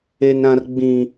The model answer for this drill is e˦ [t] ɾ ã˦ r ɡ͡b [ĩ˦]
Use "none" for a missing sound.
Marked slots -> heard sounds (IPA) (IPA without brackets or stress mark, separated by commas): n, ĩ˦